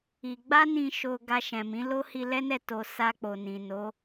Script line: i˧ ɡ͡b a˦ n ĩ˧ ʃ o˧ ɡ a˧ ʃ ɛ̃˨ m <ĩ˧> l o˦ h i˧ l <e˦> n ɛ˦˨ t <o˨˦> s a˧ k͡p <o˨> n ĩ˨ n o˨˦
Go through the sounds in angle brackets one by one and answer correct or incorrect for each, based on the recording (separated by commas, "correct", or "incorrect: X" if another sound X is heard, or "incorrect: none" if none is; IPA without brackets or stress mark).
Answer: incorrect: ĩ˨˦, incorrect: ɛ˦, incorrect: o˧, correct